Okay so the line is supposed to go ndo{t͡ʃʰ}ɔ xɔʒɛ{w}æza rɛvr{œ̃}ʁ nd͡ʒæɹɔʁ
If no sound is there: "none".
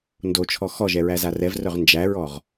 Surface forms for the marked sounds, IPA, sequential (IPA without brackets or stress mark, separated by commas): t͡ʃʰ, ɹ, œ